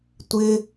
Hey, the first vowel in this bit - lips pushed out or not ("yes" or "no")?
no